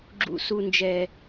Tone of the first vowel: high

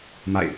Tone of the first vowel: falling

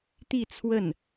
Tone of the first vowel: falling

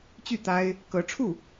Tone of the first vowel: falling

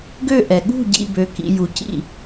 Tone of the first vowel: falling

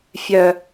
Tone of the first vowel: high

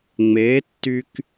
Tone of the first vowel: rising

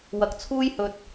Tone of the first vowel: low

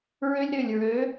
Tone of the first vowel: high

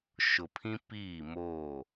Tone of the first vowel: low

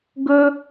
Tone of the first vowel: high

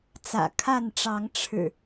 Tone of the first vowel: low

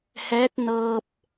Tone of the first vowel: rising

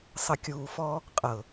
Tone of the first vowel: low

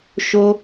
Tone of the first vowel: high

